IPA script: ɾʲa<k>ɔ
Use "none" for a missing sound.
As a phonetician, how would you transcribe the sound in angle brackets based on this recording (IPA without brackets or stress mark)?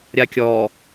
kʲ